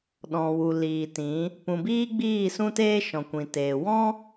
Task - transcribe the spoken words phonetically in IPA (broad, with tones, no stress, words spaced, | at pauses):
ɗɔ̃˨wu˨liː˨tĩ˨˦ | pũ˨biː˦ɡ͡biː˦˨ sũ˦teː˦ ʃɔ̃˨kʷĩ˨teː˨ wɔ̃˦